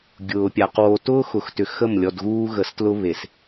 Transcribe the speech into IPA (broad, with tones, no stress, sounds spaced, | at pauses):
ɡʲ ʊː˨ pʲ a˨ q w o˨ t ʊː˦ x ʊ˨ x t ʏ˨ x ə˦˨ m lʲ ɔ˨ d ɣ uː˦ ɣ ə˨ s t l ʊ˦ β e˨ s